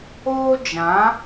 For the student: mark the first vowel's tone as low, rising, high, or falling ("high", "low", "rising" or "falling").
high